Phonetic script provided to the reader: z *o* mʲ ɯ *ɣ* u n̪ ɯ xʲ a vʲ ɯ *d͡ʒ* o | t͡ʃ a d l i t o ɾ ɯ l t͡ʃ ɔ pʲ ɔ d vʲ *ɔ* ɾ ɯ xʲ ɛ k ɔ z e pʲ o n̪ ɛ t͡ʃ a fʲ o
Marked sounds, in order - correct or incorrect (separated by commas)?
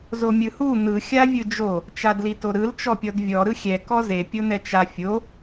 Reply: correct, incorrect, correct, correct